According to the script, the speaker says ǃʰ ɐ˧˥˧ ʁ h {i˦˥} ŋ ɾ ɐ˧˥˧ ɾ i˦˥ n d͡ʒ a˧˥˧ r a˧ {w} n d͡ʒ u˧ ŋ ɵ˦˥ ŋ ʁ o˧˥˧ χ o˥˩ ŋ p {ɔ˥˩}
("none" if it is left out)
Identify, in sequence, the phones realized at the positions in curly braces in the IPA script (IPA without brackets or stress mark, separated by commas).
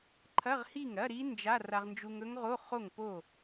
i˥˩, ʁ, o˥˩